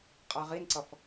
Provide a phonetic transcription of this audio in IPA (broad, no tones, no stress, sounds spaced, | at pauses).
qʼ a ʁ i n ǀ ʌ f